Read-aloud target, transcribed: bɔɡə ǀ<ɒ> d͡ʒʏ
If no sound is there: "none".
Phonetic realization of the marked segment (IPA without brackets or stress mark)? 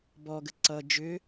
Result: ʌ